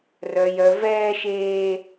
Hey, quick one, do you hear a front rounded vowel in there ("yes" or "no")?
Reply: yes